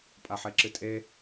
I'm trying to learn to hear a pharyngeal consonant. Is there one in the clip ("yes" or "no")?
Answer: yes